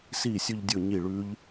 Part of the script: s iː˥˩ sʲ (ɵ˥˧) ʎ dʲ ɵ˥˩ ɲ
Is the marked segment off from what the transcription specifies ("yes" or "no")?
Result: no